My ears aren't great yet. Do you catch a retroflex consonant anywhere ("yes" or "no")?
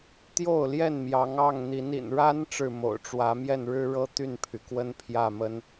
yes